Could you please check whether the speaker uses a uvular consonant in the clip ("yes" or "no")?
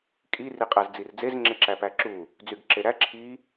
yes